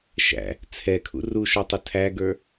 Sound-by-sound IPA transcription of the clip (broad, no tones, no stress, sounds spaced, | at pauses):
ʃ æ̰ | t͡sʰ ɛ kʰ ṵ r u ʃ ɔ tˤ ʊ tʰ æ ɡ ə˞